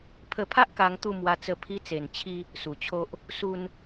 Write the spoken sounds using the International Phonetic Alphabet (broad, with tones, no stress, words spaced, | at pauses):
pʰə˧pʰa˦ʔka˧ŋt̪u˧ mwa˧t͡sə˧ pʰi˧t͡se˨˩n t͡ɕʰi˦ | su˨˩t͡ɕʰo˦ʔ | su˦n